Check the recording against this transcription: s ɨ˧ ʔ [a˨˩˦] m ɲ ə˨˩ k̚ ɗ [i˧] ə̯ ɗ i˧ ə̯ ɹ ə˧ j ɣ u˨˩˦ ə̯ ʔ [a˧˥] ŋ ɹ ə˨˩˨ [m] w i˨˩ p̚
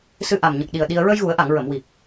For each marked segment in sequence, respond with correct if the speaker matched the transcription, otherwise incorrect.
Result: incorrect, incorrect, incorrect, correct

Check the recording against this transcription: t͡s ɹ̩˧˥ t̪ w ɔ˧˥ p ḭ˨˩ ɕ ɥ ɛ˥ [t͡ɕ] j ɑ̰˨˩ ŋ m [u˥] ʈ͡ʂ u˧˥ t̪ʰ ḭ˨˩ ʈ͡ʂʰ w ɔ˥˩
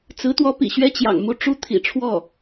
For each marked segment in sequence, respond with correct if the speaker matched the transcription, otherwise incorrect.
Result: correct, incorrect

